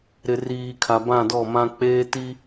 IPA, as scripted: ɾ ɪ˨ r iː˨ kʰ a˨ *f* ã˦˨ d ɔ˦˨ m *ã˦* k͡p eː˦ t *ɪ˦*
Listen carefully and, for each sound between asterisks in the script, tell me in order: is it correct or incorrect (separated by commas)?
incorrect, correct, incorrect